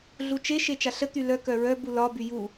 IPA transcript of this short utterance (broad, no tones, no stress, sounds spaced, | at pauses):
ɮ u t͡ʃ e ʃ e t͡ʃ a ɬ ə t̪ y l œ k œ ɹ œ b u l ɒ b y j u